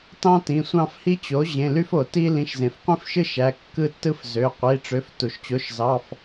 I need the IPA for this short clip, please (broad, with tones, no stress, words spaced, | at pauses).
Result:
tɑ̃˦tĩ˩˧˩sʷɑ̃˦˨fhi˦ t͡ɕo˩˥ ʑẽ˩˧˩ly˦fo˩ ti˦ lĩ˩˧˩ʃzẽ˩fqʷĩ˦fʃɯ˦ ʃæ˩˧˩ kːɯ˦˨tːɯ˦fzø˩˧˩ qʷi˩˧˩ʈ͡ʂø˩˥f tu˩ʃt͡ɕo˩˥ʃzɑ˩˧˩f